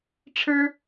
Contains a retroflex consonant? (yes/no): yes